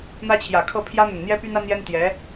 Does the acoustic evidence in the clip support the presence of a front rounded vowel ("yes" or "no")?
yes